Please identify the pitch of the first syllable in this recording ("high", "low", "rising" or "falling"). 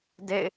falling